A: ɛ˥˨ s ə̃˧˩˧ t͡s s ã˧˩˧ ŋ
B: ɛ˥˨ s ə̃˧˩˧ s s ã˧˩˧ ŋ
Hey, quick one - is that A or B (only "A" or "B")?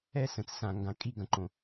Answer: A